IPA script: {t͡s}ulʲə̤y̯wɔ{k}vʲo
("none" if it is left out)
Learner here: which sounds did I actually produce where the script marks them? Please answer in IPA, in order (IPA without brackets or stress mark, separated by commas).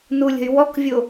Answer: n, k